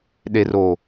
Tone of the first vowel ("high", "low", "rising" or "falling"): low